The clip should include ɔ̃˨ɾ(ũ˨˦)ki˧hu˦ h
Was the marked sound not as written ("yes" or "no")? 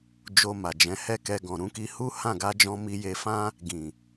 no